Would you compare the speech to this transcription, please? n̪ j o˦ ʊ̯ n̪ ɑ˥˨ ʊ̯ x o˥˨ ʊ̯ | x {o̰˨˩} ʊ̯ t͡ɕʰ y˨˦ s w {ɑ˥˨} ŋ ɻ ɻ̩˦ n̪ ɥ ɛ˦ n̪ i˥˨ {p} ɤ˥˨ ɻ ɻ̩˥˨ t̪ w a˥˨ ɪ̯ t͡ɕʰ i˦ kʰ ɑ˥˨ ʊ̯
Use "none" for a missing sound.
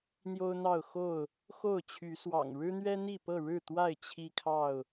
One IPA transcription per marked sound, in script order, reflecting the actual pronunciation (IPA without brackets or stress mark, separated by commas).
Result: o˥˨, ɑ̰˨˩, p